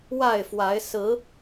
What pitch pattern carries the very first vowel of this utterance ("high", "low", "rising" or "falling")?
falling